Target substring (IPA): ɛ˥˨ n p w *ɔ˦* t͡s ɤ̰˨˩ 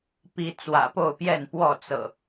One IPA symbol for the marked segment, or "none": ɔ˥˨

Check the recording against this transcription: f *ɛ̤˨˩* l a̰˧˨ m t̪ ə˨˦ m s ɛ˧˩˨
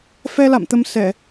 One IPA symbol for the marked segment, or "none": ɛ˧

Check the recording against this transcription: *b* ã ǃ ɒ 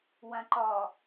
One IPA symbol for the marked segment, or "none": w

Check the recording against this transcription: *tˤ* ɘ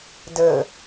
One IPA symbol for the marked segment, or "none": d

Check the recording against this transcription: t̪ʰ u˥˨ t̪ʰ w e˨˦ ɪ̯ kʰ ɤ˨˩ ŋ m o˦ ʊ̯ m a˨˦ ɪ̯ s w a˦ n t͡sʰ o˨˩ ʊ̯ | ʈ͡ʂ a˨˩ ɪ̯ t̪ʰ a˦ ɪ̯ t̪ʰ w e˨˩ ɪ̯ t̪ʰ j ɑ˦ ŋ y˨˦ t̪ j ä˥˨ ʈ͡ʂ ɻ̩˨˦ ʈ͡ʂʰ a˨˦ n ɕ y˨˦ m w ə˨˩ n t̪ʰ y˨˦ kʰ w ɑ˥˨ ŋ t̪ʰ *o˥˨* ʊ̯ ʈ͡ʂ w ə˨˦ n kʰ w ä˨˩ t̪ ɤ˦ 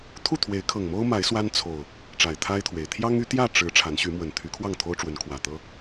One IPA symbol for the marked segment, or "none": o˦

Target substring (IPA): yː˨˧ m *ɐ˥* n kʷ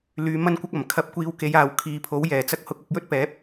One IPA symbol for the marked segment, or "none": ɐ˥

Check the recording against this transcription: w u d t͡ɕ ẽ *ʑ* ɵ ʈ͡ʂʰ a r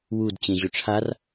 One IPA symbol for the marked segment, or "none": ʑ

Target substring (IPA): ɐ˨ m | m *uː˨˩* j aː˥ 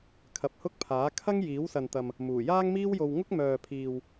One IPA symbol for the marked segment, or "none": uː˨˩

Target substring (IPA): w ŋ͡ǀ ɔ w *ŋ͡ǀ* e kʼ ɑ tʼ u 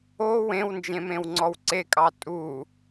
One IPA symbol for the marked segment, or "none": ǀ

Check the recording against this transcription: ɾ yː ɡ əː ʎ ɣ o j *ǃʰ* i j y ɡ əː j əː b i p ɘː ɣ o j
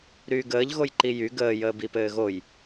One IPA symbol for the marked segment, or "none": ǃ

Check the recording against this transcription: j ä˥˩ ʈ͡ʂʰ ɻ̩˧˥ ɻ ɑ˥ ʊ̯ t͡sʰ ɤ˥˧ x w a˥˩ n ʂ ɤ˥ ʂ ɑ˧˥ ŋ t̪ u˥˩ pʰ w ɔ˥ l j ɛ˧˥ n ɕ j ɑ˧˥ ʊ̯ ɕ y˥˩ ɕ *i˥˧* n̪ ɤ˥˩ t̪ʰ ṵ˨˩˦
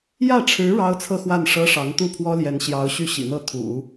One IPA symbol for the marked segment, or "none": ḭ˨˩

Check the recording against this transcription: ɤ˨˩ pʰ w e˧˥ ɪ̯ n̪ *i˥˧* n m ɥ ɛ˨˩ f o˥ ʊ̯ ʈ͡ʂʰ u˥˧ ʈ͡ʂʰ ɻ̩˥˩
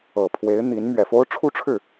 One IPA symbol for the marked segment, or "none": i˧˥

